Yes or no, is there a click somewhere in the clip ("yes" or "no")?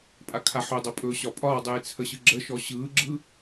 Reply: yes